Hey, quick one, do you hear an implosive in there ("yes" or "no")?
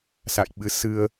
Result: yes